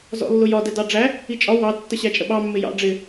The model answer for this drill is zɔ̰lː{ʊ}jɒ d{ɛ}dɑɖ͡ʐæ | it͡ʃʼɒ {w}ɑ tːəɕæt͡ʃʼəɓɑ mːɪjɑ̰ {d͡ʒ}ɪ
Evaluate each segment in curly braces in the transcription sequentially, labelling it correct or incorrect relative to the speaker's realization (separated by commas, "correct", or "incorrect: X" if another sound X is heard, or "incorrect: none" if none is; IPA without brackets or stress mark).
correct, correct, correct, incorrect: ɖ͡ʐ